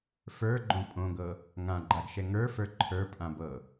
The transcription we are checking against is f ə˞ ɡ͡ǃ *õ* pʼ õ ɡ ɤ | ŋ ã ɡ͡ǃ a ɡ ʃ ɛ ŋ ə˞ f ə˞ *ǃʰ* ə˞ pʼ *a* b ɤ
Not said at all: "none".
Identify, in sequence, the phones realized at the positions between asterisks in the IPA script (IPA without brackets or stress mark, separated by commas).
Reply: õ, ǃʰ, ã